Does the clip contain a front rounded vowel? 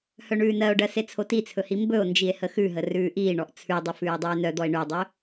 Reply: yes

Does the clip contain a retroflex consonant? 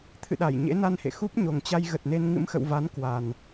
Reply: no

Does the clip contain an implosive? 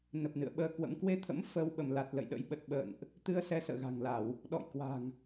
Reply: yes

